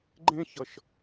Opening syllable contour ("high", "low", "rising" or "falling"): high